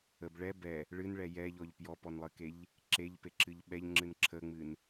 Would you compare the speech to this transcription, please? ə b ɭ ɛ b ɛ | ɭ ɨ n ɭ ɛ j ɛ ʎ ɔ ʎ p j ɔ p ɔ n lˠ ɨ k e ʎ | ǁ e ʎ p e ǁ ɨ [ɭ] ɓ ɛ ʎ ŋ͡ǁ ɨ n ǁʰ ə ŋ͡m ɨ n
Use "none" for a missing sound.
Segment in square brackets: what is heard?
ʎ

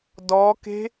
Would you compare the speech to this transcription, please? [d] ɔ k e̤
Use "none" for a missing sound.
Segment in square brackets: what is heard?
d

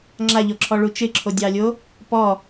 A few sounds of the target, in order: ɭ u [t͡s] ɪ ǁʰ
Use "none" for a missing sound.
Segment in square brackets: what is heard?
t͡ʃ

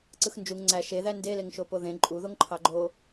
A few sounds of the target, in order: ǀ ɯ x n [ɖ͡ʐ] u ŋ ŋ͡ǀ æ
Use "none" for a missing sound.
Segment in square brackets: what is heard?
d͡ʒ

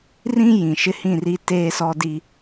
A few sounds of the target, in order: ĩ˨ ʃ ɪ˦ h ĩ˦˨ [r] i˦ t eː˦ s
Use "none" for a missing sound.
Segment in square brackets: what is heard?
r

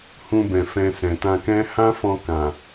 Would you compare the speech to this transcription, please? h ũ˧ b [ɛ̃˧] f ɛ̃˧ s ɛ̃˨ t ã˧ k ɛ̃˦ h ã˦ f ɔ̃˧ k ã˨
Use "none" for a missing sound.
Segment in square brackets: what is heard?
ɛ̃˨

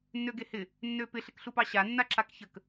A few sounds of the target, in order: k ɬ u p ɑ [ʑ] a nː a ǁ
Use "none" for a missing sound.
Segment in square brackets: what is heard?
ɕ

